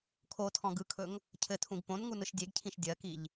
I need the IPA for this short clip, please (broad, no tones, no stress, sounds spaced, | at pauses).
kʰ o tʰ ɔ̃ ɡ ɯ kʰ ɵ ŋ | cʰ ɘ tʰ ũ ɡ p õ n ŋ u n ɯ ʃ dʲ e ɡ cʰ ĩ ʃ dʲ ɜ k i ʎ